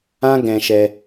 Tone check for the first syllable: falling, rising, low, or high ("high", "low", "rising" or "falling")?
high